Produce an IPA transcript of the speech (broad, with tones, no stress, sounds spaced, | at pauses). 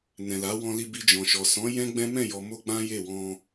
n ɛ̃˨ l a˨˦ w ɔ̃˧ l i˧ b i˧ d͡ʒ ɔ̃˨ ʃ ɔ˨ s ɔ̃˨˦ j ɛ̃˦ ɡ͡b ɛ̃˦ m ɛ̃˦˨ j ɔ˨ m o˧ ɡ͡b ã˦ j e˦˨ w ɔ̃˧